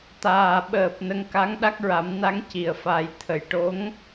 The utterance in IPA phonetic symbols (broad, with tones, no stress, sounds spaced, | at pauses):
t̪ aː˨˩ ɓ əː˨˩ p̚ n ə˧ ŋ k a˧˥ ŋ ɗ a˦˥ k̚ ɹ a˨˩˦ m n a˧˥ ŋ c i˨˩ ə̯ f a˨˩˦ j t̪ʰ ə˨˩ j ʈ o˧˥ ŋ